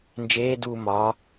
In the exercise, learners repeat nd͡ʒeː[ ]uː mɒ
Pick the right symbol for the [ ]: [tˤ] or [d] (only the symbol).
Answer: d